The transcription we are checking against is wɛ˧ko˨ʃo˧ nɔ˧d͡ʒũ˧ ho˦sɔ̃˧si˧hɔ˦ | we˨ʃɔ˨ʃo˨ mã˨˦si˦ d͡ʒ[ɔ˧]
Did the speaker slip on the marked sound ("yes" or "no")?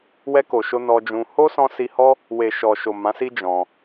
yes